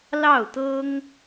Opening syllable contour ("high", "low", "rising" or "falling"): falling